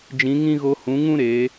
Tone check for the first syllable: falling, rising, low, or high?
rising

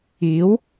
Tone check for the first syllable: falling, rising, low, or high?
rising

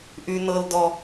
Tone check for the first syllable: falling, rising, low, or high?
high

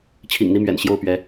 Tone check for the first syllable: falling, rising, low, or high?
low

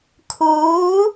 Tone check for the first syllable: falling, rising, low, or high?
rising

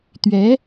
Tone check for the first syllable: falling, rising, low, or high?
rising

